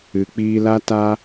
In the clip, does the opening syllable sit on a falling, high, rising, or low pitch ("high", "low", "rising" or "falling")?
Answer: low